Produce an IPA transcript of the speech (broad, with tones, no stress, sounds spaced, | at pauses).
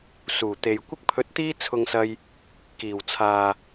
s uː˨˩ t̪ e˨ j kʷ ɪ˥ k̚ pʰ ɵ˧ t̚ t̪ iː˥ t͡sʰ ʊ˧ ŋ s ɐ˧ j | k iː˨˩ w t͡sʰ aː˨